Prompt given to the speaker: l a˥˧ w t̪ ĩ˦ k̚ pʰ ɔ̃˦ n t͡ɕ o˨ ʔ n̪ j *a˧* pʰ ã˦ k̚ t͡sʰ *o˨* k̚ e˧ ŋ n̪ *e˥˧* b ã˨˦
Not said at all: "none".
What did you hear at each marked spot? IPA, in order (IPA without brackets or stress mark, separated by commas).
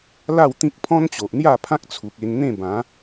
a˥˧, u˨, ẽ˥˧